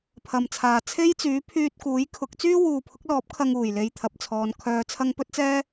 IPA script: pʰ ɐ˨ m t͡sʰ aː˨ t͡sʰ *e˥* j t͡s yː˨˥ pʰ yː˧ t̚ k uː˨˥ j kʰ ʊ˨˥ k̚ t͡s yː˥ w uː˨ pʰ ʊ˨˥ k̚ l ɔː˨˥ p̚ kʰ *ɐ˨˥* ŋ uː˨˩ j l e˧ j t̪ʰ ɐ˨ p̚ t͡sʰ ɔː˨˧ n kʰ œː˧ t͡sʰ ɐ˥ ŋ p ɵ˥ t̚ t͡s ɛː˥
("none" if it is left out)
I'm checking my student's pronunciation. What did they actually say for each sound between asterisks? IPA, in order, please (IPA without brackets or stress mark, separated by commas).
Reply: e˥, ɐ˧